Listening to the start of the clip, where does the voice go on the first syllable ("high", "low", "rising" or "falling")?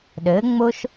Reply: rising